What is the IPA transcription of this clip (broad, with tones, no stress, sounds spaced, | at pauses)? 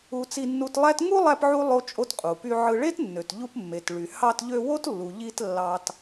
u˧ t͡s i˧ nː u˧ t lˠ æ˥ t ŋ u˥ lˠ æ˧ p ʕ u˧ lˠ o˧ t͡ʃʼ o˧ t qʼ u˩ p y˧ ʕ ɯ˧ ɭ e˥ t nː ø˩ t ʎ u˧ p mː e˩ t ɭ y˩ h ɑ˧ t ʎ ø˧ w o˥ t lː u˩ ʎ i˧ t lː ɑ˧ t